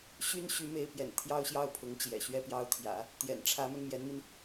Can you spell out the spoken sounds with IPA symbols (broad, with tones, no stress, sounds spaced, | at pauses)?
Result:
ɕ y˥ n ɕ y˧˥ m e˧˥ ɪ̯ p j ɛ̰˨˩ n t̪ʰ j ɑ˥ ʊ̯ ɕ j ɑ˥˩ ʊ̯ pʰ ʊ˧˥ ŋ t͡ɕ j ɛ̰˨˩ ɕ ɥ ɛ˥˧ p j ɑ˥˩ ʊ̯ t̪ʰ j ä̰˨˩˦ | t̪ j ɛ̰˨˩ n ʈ͡ʂʰ ä˧˥ m ə˧ n m j ɛ˧˥ n m i˧ n